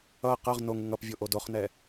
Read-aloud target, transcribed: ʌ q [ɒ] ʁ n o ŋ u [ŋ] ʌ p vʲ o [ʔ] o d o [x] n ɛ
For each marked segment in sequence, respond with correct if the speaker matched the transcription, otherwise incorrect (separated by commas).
incorrect, correct, correct, incorrect